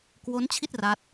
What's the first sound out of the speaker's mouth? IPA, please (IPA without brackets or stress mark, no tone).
k